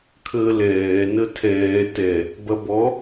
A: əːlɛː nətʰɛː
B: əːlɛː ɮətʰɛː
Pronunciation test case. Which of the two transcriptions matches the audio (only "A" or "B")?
A